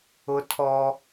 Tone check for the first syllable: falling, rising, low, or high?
high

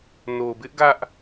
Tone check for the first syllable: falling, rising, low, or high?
low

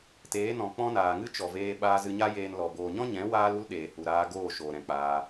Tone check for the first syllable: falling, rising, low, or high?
rising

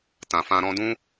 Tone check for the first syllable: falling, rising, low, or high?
low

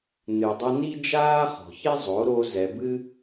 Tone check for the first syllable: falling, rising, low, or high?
low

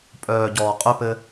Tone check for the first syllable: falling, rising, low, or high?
low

